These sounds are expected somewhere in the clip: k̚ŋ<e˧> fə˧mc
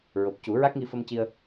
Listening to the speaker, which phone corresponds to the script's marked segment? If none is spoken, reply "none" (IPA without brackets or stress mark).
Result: i˧